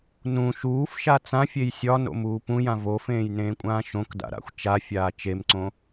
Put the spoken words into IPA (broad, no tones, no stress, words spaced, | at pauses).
nũ ʃuːfʃa t͡sãfʲej sʲɒno̰muː pũjã vofẽːjnẽːkʷʼãː ʃõkda̰ɾa̰xʷ t͡ʃafʲaː t͡ʃemǀõ